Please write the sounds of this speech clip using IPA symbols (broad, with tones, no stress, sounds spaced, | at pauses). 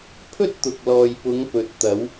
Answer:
pʰ ɵ˥ t̚ t̪ ʊ˨ k̚ l ɔː˨ j p ʊ˨˧ ŋ p ɵ˨˥ t̚ t̪ ɐ˨˧ w